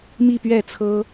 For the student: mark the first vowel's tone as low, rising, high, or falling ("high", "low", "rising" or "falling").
falling